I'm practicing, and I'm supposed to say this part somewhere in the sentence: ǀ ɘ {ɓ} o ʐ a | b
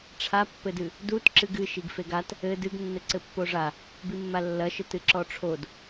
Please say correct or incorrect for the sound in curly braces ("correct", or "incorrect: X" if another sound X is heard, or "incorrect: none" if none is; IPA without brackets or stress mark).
incorrect: pː